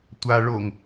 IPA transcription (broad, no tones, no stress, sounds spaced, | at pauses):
tʷ a ɭ o ŋ